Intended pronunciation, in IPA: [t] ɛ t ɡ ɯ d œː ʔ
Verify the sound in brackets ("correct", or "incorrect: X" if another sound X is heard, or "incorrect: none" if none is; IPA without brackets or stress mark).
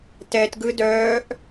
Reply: correct